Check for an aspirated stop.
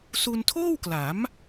present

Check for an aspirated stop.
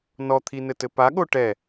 present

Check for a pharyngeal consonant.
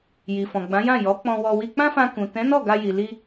absent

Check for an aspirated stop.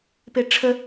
present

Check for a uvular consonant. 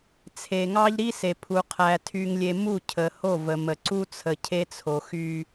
present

